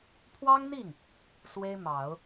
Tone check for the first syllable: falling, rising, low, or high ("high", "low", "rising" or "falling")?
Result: high